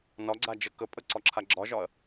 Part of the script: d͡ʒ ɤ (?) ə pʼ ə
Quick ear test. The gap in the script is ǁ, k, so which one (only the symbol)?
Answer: k